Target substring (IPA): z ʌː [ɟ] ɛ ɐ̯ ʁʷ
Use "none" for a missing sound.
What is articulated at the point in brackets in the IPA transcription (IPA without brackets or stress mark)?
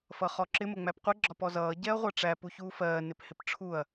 ɟ